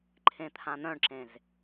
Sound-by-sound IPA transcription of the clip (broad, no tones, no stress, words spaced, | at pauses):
ǃʰẽt̪ʰãn̪œ̃ɳǁẽz